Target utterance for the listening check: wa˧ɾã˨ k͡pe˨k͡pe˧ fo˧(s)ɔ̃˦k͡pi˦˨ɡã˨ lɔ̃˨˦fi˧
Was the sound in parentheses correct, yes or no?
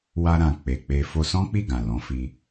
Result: yes